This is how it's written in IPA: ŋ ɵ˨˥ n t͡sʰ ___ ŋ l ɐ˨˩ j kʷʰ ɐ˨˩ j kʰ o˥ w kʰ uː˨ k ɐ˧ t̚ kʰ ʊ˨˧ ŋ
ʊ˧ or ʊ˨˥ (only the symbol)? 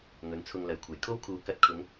ʊ˧